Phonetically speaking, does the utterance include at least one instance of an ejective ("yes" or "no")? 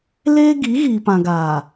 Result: no